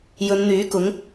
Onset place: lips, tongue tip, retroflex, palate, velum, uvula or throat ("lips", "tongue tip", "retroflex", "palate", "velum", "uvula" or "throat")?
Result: palate